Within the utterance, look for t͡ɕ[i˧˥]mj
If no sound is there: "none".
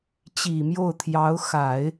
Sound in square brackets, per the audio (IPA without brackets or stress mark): i˨˩